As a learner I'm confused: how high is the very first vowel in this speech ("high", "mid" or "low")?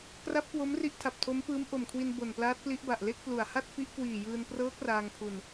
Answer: low